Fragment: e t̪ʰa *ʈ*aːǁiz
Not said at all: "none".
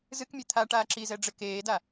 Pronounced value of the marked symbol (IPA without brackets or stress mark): ʈ